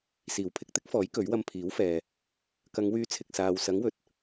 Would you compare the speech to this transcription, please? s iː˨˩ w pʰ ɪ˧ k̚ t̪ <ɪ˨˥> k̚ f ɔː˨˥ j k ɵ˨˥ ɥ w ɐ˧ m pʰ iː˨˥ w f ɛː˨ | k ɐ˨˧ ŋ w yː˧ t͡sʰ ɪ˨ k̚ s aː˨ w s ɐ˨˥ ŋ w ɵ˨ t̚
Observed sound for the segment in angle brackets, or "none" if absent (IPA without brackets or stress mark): ɪ˥